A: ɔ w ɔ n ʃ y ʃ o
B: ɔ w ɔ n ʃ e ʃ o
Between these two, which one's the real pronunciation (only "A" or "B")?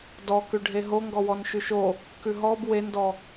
A